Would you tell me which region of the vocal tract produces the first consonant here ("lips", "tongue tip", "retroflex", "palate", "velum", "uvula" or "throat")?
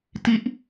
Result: tongue tip